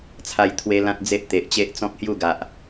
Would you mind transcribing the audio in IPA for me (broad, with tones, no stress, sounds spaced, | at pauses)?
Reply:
t͡sʰ a˧ j t̪ʰ w e˦ l ã˦ t̚ d͡z e˦ ʔ t̪ e˨ ʔ t͡ɕ e˦ ʔ t͡s ɔ̃˦ k̚ h j u˥˧ ɡ a˨ ʔ